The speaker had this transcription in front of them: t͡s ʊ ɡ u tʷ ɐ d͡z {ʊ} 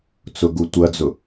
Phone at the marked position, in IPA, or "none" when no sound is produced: ʊ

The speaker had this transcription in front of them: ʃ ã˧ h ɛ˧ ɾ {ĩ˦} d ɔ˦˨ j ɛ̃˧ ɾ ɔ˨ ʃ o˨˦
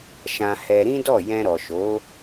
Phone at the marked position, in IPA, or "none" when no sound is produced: ĩ˦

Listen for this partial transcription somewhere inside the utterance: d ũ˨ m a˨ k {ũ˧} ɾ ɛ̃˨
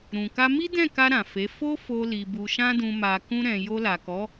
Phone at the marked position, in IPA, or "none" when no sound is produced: ũ˧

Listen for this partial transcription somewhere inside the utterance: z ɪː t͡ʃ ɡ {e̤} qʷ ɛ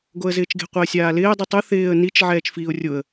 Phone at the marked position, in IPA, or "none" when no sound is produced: e̤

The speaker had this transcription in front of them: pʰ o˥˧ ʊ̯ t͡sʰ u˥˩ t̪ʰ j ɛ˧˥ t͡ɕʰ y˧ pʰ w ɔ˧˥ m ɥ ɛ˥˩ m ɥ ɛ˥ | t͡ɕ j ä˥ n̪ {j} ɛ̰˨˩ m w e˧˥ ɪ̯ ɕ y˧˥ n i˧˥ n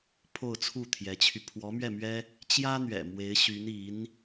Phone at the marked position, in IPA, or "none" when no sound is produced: ɥ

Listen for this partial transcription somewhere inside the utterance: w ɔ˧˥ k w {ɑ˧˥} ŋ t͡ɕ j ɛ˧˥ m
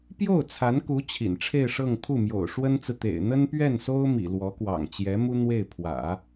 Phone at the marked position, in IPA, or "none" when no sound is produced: ɑ̰˨˩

